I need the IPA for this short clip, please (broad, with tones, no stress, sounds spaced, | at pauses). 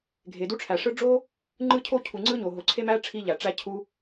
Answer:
ɡʱ e˩ d u˥ ʈ͡ʂʰ æ˩ ʂ ɯ˥ ɖ͡ʐ o˥ | ŋ͡ǃ ɯ˥ cʰ o˥ cʰ u˩ ŋ͡ǀ ɯ˥ ɲ o˩ ɦ o˩ ǀʰ e˥ m æ˥ ʈ͡ʂʰ i˥ ʎ æ˩ ʈ͡ʂ æ˥ cʰ u˥